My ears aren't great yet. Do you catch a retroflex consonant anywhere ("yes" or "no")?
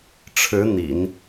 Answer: yes